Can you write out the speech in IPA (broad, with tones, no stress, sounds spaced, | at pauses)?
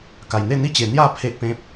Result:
k a˨˩ j n̪ e˥˧ n̪ i˥˧ t͡ɕ e˨˩ n̪ j a˥˧ pʰ e˨ ʔ p ẽ˨ p̚